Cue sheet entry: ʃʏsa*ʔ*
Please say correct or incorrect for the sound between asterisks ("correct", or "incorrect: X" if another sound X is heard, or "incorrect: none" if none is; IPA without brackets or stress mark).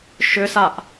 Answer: correct